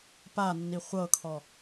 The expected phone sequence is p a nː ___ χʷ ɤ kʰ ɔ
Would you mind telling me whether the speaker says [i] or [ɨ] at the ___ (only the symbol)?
i